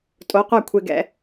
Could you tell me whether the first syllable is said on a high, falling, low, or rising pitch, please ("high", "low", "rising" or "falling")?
rising